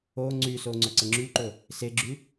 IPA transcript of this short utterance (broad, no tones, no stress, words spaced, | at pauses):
o ŋ͡ǀyso ŋ͡ǀɵǀəŋ͡ǁyǃɵ | seɡ͡ǁy